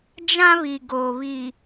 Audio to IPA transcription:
d͡ʒ ã˦ β i˨ ɡ oː˨ β i˨

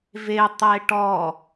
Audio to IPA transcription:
v e tˤ e ʈ ɔ

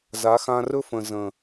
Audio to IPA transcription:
z a˨˦ x ã˧ r ɵ˦ f ə̃˨ z ə̃˨

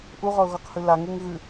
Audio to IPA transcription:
ʔ u ʁ ɔ ʊ̯ ɣ ɔ q h ʉ l a ŋ u ŋ ɣ ʉ

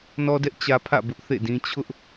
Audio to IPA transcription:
n ɔ˦ d ɛ˦ ʔ t͡ɕ ä˦ pʰ ä̰˦˨ b ʊ˦ ʔ θ ḛ˦˨ d ĩ˦ t͡ɕʰ ʊ˦ ʔ

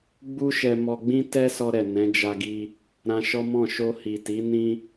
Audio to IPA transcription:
ɡ͡b u˦ ʃ ɛ˧ m ɔ˧ ɡ͡b ĩ˦ t ɛ˦ s ɔ˧ ɾ ɛ˨ n ɛ̃˨˦ d͡ʒ a˧ ɡ i˧ | ɾ ã˧ ʃ ɔ˦ m ɔ̃˦˨ ʃ o˧ h i˨ t i˨˦ n ĩ˧

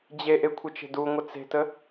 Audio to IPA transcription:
d͡ʑ e ʔ e kʷʰ ə t͡ʃ e̤ d u ŋʷ ə t͡s e̤ t ə

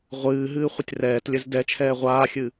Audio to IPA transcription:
ʁʷ ɨː ɦ ɨː χʷ ə tʲ r ɛː t lʲ ɘ z d ɛ t͡ʃʰ ɛː ʁʷ aː xʲ ɨ

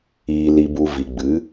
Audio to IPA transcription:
iː˨ l i˨ b u˨ v i˨ ɡ͡b ɨ˨˦

